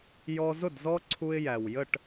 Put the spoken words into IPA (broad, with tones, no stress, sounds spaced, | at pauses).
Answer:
j ɔ˦ z ʊ˦˨ d z ɔ˦ ǀʰ u˦ ɪ̯ j æ˨ w j ə˦˨ ʈ